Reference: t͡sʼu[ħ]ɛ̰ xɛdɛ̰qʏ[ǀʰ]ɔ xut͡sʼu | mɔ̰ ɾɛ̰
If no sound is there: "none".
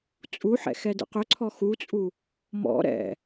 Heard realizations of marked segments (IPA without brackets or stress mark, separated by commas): ħ, ǀʰ